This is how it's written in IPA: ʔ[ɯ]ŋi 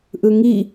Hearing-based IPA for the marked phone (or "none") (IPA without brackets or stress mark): ɯ